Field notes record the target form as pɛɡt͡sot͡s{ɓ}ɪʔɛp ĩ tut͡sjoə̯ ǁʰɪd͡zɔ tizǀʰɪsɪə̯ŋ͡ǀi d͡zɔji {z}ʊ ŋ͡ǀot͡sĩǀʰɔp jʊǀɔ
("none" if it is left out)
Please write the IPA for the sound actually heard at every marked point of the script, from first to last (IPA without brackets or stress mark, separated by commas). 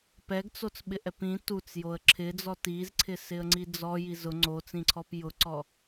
ɓ, z